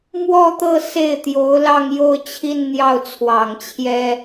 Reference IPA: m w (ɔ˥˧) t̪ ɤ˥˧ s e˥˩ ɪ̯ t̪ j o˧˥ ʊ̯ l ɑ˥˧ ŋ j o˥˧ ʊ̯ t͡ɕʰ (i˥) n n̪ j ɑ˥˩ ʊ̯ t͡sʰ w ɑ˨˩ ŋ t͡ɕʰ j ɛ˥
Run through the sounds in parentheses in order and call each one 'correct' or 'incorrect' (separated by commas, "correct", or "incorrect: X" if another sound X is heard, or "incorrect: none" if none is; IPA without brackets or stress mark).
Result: correct, incorrect: i˥˧